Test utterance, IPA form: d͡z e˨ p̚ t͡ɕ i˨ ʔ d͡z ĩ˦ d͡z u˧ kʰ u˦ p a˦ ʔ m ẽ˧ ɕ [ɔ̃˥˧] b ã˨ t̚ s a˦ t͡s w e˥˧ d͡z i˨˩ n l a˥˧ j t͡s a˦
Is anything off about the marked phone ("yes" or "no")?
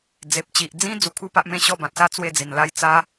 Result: yes